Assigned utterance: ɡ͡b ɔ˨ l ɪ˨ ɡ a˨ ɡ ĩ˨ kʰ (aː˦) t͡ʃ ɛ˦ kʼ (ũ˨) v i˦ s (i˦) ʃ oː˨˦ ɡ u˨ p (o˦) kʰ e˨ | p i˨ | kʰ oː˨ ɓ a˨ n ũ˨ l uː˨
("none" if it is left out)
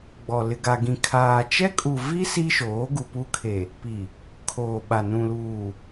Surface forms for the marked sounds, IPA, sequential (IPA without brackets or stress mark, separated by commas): aː˨, u˨, i˦, u˦